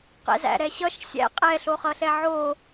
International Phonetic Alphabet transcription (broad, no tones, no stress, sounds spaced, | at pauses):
q ɛ̰ z æ̰ ɾ ɛ ɕ ʌ ʃ sʲ æ̰ qʼ ɛ ɬ o χ ʌ ɬ ɛ ʕ o